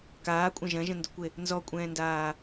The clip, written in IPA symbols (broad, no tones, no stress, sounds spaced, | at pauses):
k aː kʷʼ ɐ̃ ʒ ɐ̃ ʒ ə̃ n d ʊ kʷ e | n z ɔ kʷʼ ɛ̃ː n d aː